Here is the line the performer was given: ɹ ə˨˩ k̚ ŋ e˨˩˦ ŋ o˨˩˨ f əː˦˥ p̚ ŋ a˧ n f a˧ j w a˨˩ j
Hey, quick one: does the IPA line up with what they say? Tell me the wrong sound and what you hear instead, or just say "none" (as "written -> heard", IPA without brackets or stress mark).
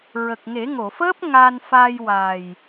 none